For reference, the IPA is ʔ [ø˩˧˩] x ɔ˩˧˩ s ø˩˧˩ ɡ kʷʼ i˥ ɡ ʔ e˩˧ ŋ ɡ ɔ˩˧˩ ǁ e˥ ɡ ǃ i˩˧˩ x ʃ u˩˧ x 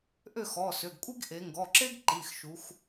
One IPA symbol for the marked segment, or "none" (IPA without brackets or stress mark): ø˥˩